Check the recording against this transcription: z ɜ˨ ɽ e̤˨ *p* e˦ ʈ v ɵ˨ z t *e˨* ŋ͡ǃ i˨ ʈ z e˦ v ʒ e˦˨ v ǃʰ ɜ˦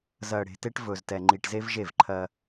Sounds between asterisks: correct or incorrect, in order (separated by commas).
incorrect, incorrect